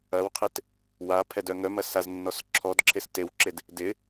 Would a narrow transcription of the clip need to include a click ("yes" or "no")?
yes